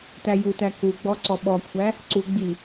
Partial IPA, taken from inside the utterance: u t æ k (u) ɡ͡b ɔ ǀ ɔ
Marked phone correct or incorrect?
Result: correct